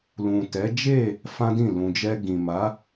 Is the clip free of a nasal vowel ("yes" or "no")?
no